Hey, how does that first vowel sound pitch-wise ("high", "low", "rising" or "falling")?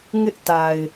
high